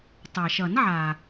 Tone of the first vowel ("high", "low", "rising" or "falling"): low